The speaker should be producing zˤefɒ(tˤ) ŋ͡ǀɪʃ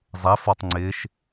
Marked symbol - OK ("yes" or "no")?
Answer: yes